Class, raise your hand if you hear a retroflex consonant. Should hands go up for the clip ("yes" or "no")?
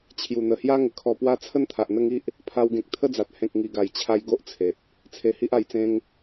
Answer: no